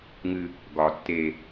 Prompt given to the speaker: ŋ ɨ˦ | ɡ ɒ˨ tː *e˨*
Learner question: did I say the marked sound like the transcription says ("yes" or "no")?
yes